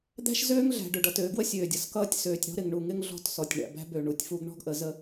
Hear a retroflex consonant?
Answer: yes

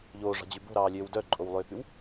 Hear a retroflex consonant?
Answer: yes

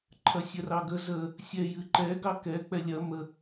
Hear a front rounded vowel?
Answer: no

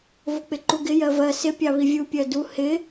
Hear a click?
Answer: yes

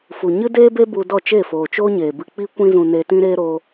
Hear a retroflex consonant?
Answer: no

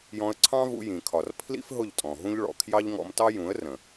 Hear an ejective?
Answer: yes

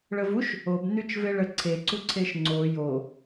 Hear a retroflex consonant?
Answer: yes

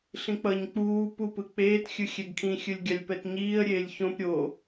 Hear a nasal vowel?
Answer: yes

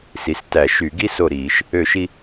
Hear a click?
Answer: no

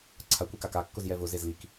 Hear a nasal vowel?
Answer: no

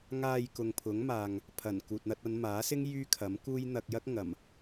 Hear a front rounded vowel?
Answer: yes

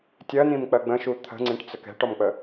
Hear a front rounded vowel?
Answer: no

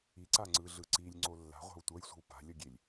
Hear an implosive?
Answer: no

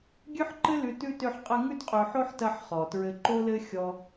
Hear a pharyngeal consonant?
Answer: yes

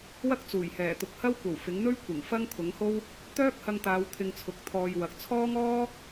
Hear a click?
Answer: no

